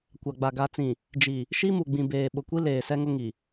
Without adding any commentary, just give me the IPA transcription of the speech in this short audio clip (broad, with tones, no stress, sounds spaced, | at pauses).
kʷ a˨ ɡ͡b a˨ ɡ a˨ t͡s ĩ˨ | d͡ʒ i˨ | ʃ i˦ m u˨ ɡ͡b ĩ˨ b eː˨ ɓ ʊ˨ kʷ i˦ l eː˨ s ɛ˦ ŋ ʊ˦ ŋ i˨